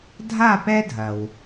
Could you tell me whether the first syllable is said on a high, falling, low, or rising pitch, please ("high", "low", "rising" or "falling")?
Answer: falling